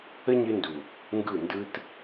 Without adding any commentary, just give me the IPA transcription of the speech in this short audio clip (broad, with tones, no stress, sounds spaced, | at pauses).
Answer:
ə˦ ɲ ɨ˧ n d u˨ | ŋ ɡ ɯ˦˨ n d ɯ˦ t